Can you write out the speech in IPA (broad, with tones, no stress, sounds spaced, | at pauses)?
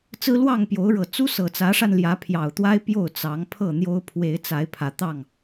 t͡s ɹ̩˦ l w ɑ˥˨ ŋ p j o˨˦ ʊ̯ ɻ ɤ˨˩ t͡s u˦ s ɤ˨˩ t͡s ä˨˦ ʂ a˧ n l j ä˨˦ pʰ j ɑ˨˩ ʊ̯ t̪ w a˦ ɪ̯ p j o˥˨ ʊ̯ t͡s ɑ˨˦ ŋ pʰ ɤ˥˨ n̪ j o˦ ʊ̯ pʰ w e˨˦ ɪ̯ t͡s a˨˦ ɪ̯ pʰ ä˨˦ t̪ ɑ˥˨ ŋ